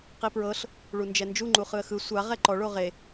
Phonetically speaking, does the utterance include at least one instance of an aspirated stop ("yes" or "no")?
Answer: no